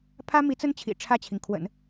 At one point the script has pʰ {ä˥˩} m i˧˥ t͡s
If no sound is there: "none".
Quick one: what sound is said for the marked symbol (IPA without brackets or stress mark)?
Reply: ä˥